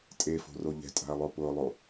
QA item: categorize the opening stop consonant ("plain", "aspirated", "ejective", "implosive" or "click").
ejective